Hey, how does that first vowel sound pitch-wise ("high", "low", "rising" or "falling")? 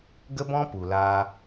high